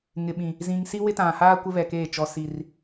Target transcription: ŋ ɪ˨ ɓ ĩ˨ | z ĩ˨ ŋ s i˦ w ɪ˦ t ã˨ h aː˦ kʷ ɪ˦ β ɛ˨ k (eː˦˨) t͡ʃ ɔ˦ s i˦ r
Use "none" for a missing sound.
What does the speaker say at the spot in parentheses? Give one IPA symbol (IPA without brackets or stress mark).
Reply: eː˦˨